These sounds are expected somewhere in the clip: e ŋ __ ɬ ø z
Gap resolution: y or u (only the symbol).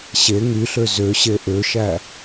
y